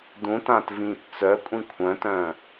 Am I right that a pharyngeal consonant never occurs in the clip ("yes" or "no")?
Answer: yes